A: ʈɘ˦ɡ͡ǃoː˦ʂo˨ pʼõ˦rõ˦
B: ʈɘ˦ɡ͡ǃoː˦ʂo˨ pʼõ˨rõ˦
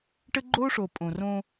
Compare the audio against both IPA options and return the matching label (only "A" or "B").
B